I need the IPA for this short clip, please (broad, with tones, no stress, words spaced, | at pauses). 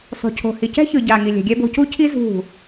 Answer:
sˤṳ˨cʰo̤˨hi˨ cɛ̤˦çɯ˨ ɟa˨ŋi˨lʲɛ̤˨ɡʲɛ˦ bo̤˨cu˦cʰi˦ zṳ˦˨